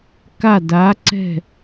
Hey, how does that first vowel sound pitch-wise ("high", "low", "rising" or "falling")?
falling